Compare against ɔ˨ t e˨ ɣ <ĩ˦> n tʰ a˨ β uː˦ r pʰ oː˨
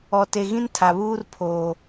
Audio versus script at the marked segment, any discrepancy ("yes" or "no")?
no